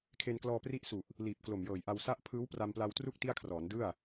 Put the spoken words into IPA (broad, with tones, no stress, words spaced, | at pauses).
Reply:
kʰe˧nklɔː˧ pri˦˥ʔsu˨˩ʔ | liː˨˩p̚ klo˨˩mjɤː˨˩jʔa˧w sa˥˩ʔ pʰɯː˦˥wpra˧mpla˧wtru˥˩k̚ ti˥˩a̯kʰrɔː˩˦ndɯ˥˩a̯